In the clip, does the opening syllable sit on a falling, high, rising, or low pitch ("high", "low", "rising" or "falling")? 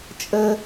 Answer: high